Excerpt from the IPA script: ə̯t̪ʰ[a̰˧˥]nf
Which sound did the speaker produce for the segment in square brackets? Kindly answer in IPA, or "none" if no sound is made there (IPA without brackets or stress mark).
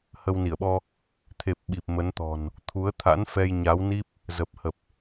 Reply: a̰˧˥